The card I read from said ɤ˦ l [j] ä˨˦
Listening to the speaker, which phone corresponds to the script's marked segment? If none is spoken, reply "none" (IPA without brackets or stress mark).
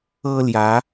j